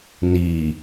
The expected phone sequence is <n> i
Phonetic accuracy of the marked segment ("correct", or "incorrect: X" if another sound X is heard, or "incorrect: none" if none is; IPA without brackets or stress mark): correct